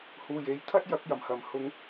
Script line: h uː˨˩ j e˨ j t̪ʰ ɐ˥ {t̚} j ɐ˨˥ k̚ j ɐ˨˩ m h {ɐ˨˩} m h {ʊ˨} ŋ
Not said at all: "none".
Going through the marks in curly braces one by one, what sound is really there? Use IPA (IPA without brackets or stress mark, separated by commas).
t̚, ɐ˨˩, ʊ˨˥